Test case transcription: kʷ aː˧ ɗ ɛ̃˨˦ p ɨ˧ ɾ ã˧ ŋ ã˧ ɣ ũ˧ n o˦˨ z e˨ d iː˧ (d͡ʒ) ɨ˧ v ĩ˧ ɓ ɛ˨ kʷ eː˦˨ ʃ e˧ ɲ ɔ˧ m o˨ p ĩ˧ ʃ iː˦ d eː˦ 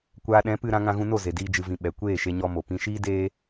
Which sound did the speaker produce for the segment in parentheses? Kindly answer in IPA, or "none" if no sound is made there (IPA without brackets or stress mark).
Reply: d͡ʒ